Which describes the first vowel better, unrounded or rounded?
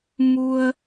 rounded